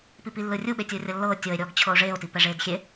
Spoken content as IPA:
p i p i lː ɯ rʲ u ɓ e tʲ oː rʲ ɤ lː ɤː tʲ ɤ e̯ ɾʲ ɔː ɡ t͡ɕʰ ɤ o̯ ʐ eː o̯ t i p ɛ ʐ eː d xʲ e

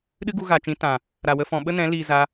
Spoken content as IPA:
ɗ ɨ˦ ɡ u˧ ɣ a˨ t͡ʃ ĩ˨˦ t ã˨ | ɾ a˨ w ə˧ f ɔ̃˨ ɓ ə˦ n ɛ̃˨˦ l iː˨ z a˧

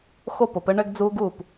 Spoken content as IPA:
x o˥˩ p o˩˧ p ɘ˦ ɳ ɘ˦ ɡ d͡z u˦ ɡ u˥˩ p

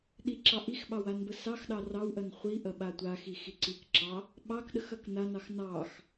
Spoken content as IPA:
ɗ i ǁ ɑ ʔ i x ɓ ɑ w a n b ə s ɑ x ɗ ɑ r ɑ w ʔ ɐ n χʷ i ʔ ɐ ɓ a tʷ a x i x i ǀ i k ǁ ɑ | ɓ ɑ k ɗ ə x ɐ k n a n ɑ x n ɑ x

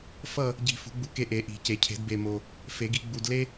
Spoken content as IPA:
f ʌ˦˨ | ɟ i̤˨ f ṳ˨˩˦ ɡ͡b u˨ k e˦˨ ʔ e˨˩˦ ʔ i̤˨˩˦ c e˨˩˦ cʰ e̤˨˩˦ d b e˨ m o˨ | f e˨˩˦ ɡ i˨˩˦ ɡ͡b u˨ d l e˥

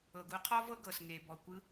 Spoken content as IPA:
ɤ˩ ɡ u˩˧ qʰ ɔ˥ v ɤ˥ ɡ ɤ˩ s ŋ e˩ b ɔ˩ kʷ ɯ˧˥

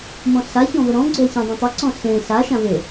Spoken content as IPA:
m ɔ̃ ɬ a ç ɔ̃ v ə ɾ ɔ̃ ɡ͡ǀ ʊ ɐ̯ ç ẽ dˤ ã tˤ ʊ ǀ ɔ̃ ɬ ẽ ɬ a ʃ ã v e

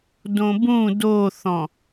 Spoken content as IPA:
d õ b ũ d o θ ɔ̃

